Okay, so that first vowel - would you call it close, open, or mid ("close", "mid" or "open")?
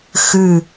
close